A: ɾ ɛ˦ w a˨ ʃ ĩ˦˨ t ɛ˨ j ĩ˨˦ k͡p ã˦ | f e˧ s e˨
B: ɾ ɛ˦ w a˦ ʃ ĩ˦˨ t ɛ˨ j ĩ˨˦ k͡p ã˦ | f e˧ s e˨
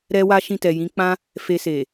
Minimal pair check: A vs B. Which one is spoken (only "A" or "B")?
B